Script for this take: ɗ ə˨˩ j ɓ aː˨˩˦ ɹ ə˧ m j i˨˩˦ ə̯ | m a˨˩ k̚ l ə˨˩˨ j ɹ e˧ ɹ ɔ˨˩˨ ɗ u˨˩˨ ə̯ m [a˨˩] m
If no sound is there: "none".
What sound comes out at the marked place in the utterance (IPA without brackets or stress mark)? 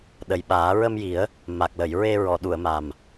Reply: a˨˩